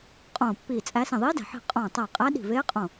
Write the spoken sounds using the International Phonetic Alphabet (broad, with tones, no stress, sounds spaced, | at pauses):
qʼ õː˧˩ pː iː˧˩ t͡sʼ æ˧˥ s ĩ˧˩ ðˤ iː˧˥ d æ̤˧˩ ħ i̤˧˩ qʼ õː˧˩ tˤ æ˧˩ qʼ æ˧˥ ɗ i̤˧˩ v eː˧˥ qʼ õ˧˩